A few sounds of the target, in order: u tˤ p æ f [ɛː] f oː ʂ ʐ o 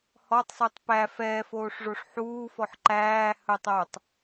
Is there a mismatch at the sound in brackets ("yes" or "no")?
no